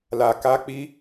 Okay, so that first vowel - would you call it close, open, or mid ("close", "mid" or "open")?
open